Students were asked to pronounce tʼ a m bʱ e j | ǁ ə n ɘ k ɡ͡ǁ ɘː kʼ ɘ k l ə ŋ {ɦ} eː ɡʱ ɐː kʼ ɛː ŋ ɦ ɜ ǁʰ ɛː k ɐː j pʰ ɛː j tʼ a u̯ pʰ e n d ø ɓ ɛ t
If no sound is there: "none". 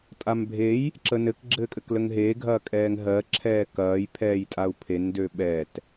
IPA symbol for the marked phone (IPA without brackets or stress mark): ɦ